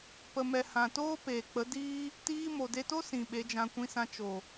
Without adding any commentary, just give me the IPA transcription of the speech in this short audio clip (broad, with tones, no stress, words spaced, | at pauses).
pə˨mɛ˨hã˨toː˦ peː˨k͡pə˨˦diː˦ | tiː˦ mo˨de˧to˦ sĩ˨ ɓe˨˦d͡ʒã˧ kʷĩ˧sã˧ t͡ʃo˨